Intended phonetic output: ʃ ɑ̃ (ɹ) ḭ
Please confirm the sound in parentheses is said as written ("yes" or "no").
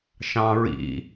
yes